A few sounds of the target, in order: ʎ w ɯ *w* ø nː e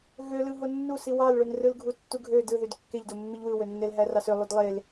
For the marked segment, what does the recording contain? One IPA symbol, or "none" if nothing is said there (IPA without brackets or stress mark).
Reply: w